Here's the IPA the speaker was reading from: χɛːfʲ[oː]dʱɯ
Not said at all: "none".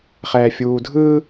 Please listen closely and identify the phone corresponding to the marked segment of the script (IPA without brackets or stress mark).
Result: uː